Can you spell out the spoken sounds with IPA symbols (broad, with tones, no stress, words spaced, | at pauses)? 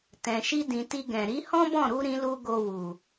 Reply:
tɛ̃˨ʃi˧dĩ˨ ti˧ɡɛ̃˨ ɾi˨˦hɔ̃˦bɔ̃˦˨ ɾu˧ ɾĩ˦lu˦ɡo˧ wu˨